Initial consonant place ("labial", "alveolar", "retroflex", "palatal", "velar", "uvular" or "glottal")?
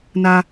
alveolar